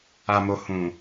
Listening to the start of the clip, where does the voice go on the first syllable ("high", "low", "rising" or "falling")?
low